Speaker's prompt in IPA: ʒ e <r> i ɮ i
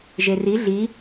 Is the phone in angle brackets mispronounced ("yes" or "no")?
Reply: no